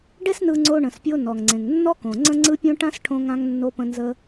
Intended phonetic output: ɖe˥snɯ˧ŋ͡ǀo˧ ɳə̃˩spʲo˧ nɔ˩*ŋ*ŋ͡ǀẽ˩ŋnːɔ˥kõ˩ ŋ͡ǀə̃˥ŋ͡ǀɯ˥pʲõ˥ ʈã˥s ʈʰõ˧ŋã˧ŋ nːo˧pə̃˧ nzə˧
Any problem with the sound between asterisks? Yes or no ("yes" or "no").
no